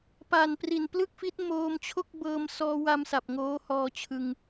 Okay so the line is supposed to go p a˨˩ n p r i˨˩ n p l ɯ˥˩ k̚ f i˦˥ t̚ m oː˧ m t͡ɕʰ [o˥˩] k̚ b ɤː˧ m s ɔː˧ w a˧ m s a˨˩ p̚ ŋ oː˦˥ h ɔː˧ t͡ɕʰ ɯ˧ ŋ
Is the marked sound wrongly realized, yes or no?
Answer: no